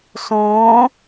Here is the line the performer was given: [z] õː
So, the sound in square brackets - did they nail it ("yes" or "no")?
no